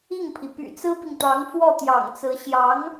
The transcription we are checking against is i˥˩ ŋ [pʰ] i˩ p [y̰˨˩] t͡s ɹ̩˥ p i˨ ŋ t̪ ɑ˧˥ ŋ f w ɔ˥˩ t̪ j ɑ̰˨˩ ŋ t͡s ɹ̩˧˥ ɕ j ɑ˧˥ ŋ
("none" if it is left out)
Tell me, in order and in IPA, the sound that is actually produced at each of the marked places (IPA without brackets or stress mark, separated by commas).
pʰ, y̰˨˩